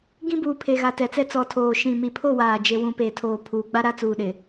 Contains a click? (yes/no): no